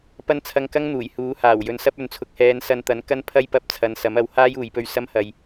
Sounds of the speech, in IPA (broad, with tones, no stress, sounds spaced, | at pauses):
p ɐ˥ n t͡sʰ ɐ˧ ŋ k ɐ˥ ŋ n̪ uː˨˩ j h uː˨˥ h aː˨˩ w j ɵ˨˧ n s ɐ˥ p̚ ɵ˨ n t͡sʰ ʊ˨˥ k̚ h ɛː˨˧ n s ɐ˧ n t̪ ɐ˨˥ n k ɐ˥ n pʰ ɐ˥ j p ɐ˧ p̚ t͡sʰ ɐ˨˧ n s ɐ˨˥ m ɐ˨˧ w h aː˥ j uː˨ j p ɵ˧ ɥ s ɐ˥ m h ɐ˧ j